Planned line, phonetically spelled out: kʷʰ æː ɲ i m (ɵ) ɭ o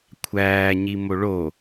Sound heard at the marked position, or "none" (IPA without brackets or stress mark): o